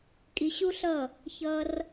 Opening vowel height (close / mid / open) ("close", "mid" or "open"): close